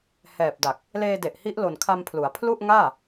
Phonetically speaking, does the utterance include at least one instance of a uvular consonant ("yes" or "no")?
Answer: no